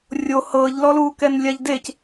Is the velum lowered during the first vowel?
no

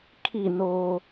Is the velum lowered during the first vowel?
no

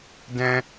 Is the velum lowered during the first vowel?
yes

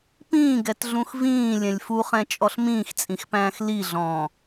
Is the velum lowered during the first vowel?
yes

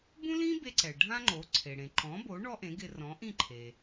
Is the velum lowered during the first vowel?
yes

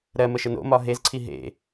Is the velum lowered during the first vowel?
no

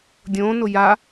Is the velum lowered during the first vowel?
yes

